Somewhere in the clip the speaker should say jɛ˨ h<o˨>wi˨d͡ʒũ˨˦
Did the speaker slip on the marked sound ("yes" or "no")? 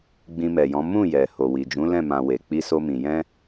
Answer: no